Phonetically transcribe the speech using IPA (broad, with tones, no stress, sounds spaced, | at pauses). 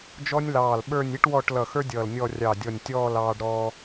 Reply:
d͡ʒ ɔ˥ nʲ l ɑː˧˩ l ɓ ə˞˥˧ nʲ i˥ ʈ w ɔ˥˧ ʈ l ʌ˧˩ x ə˞˥ dʲ ʌː˧˩ l nʲ ɔ˥˧ rʲ ɑ˧˩ dʲ ɔ˧˩ nʲ tʲ ɔː˥˧ l ɑː˧ ɖ ɾ ɔ˧